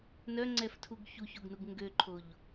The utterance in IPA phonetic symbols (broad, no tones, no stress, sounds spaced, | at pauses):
n œ ŋ͡ǀ ɛ f tʰ u ɡ ç u ç o ɡ n u ɡ ŋ ɡ ø ǃʰ o ʎ